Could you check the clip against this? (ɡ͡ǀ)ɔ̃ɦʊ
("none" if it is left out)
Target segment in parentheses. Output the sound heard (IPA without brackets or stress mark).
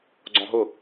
ɡ͡ǀ